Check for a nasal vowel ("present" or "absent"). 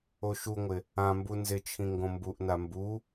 present